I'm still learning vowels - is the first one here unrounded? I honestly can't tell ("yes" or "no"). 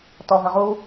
no